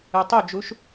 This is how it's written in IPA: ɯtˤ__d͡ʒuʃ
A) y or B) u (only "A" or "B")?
A